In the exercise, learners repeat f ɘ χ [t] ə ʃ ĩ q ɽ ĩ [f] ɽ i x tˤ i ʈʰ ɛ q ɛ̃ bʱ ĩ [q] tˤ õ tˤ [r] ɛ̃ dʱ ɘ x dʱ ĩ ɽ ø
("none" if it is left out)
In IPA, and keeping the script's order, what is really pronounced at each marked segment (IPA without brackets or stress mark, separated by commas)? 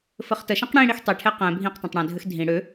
t, none, q, ɽ